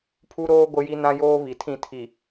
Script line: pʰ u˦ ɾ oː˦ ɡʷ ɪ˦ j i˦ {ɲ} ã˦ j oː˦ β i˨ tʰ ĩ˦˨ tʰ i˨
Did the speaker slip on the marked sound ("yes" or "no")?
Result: yes